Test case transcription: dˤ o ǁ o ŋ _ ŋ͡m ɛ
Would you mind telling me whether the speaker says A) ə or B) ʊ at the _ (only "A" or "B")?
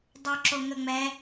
A